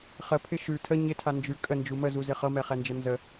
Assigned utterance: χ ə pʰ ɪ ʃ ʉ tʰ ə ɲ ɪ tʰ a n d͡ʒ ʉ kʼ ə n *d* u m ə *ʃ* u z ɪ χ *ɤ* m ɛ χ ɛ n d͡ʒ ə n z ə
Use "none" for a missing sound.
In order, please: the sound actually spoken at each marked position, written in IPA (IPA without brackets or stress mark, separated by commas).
d͡ʒ, z, ɤ